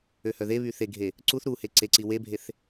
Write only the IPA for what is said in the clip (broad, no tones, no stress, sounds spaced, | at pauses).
ø h œ ð e β y θ e ɡʱ e | ǀ u θ ɾ u h e ǀ e ǀ i w e bʱ e θ